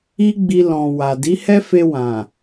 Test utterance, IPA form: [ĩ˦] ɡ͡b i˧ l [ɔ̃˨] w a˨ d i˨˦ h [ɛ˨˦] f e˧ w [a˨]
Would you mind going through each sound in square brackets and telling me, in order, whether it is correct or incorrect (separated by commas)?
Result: incorrect, correct, incorrect, incorrect